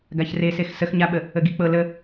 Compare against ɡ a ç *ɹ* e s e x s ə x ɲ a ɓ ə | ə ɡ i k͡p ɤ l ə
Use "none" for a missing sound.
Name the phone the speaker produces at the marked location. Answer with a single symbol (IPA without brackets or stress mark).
r